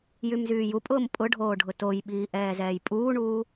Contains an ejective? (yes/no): yes